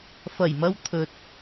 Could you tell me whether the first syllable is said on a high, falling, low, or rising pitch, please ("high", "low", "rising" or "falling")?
low